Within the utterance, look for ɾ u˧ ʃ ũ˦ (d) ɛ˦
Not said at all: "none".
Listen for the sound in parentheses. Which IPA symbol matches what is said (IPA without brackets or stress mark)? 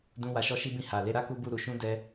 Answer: d